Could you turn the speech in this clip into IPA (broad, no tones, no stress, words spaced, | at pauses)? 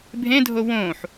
bʱẽdʱo wõːħ